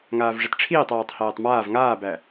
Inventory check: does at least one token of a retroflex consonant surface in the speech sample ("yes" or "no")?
yes